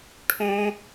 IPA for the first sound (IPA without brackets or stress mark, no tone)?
ʈʰ